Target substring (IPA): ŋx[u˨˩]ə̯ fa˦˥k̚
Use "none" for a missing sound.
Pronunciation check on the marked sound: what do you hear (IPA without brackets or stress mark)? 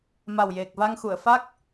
u˨˩˨